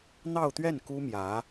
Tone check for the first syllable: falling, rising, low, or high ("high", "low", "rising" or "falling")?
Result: falling